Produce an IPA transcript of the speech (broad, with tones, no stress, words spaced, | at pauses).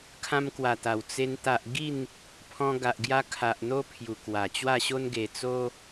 kʰã˧mkwa˨˩t̪a˨˩w t͡se˧n t̪a˨ʔ ɡi˥˧n | pʰɔ̃˧ɡa˨ʔɡja˧kʰa˨ʔ n̪o˦ pʰju˨˩kwa˨˩t͡ɕwa˥˧ɕo˦n ɡe˧ t͡so˦